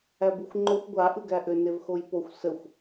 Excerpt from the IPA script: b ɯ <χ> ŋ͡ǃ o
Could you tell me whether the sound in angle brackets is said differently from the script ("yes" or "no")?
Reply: yes